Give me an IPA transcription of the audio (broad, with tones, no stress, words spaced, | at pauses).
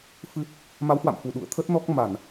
fɨ˨˦ | ma˨˦whwa̰˧˨m fu˧˩ɗṵ˧˨ə̯ t̪ʰə˦˥t̚nɔ˦˥k̚ ma˧˩˨n